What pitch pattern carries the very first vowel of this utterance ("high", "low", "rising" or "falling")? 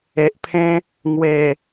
low